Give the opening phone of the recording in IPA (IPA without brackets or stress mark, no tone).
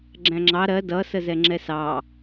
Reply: ɡ͡ǁ